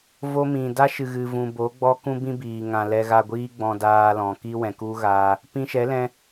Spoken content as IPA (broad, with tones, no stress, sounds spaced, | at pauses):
v o˦ m ĩ˨ d a˦ ʃ ɨ˨ ɣ ɨ˨ v ũ˨ b o˨˦ ɡ͡b ɔ˦ k ũ˦ b ĩ˦ b iː˨ ŋ ã˨ l ɛ˧ ɣ a˧ ɡʷ iː˦ ɡ͡b ɔ̃˧ d aː˧ l ɔ̃˨ k i˦ w ɛ̃˨ k u˦ ɣ aː˧ | p ĩ˧ ʃ ɛ˨˦ l ɛ̃˧